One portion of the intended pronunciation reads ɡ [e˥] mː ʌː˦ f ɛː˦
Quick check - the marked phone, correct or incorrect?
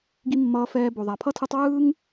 incorrect